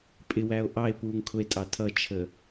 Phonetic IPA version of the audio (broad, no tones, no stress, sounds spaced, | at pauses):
pʼ ɪ w æ o̯ ʔ ɑ e̯ p uː ŋ kʰ ʊ e̯ tʼ ɑ tʰ ʌ t͡ʃʰ ə